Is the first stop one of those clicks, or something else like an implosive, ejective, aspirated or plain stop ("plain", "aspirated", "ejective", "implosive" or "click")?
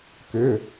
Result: plain